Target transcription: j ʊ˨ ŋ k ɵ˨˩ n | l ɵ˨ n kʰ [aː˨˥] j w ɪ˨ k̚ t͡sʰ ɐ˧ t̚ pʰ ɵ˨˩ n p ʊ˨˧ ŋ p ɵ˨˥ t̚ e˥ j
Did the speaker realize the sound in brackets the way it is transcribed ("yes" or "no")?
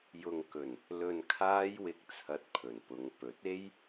no